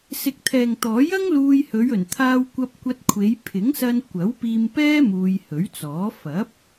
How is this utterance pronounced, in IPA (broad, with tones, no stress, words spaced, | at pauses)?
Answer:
sɪ˨k̚t̪ʰɛː˨ŋt̪ɔː˨˥jɐ˥ŋ luː˧jhɵ˨˧ɥ ɵ˨˩nt̪ʰaː˧w kʷɐ˧p̚kʷɐ˧t̚kʷʰe˨˧j pʰɪ˨˥ŋsɐ˧n kʷɐ˨˥wpiː˧mpɛː˥ muː˧jhɵ˨˥ɥt͡sɔː˨˥ fɐ˨˥p̚